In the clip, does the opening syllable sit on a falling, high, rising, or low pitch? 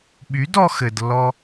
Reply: rising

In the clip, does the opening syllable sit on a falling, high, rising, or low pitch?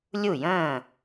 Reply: falling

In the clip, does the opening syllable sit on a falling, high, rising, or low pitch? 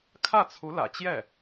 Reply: falling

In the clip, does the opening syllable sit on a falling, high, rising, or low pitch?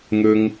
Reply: high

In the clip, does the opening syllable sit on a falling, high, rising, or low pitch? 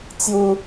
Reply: high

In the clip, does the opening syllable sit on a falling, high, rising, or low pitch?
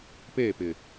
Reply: falling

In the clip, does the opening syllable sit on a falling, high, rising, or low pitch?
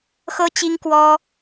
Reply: high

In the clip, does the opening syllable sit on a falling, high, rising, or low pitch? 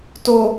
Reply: low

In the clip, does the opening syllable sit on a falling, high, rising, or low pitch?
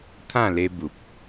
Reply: falling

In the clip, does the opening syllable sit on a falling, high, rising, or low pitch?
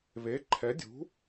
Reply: rising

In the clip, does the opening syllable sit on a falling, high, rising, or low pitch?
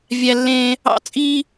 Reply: high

